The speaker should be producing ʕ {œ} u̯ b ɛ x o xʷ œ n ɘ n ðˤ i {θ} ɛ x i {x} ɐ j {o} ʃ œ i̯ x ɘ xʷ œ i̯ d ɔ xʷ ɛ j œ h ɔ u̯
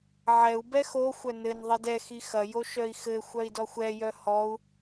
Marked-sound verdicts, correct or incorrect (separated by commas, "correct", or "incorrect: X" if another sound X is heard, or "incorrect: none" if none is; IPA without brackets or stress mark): incorrect: ɛ, incorrect: d, correct, correct